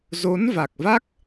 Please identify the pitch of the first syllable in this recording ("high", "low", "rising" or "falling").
rising